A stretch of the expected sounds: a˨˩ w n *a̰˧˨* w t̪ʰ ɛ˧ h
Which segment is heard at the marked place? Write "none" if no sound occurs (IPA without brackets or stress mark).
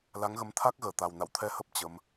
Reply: a̰˧˨